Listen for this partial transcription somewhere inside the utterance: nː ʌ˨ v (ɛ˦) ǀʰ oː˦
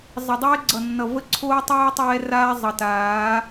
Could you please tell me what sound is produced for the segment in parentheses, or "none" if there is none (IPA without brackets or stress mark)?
ə˦